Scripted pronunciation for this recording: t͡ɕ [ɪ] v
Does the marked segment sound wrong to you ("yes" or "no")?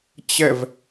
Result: yes